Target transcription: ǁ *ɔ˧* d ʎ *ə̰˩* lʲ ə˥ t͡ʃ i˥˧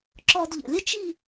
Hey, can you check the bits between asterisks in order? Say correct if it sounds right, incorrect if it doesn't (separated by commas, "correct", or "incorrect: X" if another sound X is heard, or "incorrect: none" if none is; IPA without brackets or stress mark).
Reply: correct, correct